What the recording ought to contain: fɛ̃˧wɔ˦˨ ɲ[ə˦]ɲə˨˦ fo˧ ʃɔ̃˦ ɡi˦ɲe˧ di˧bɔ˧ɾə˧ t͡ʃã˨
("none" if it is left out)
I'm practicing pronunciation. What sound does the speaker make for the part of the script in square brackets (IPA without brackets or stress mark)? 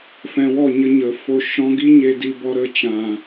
ə˦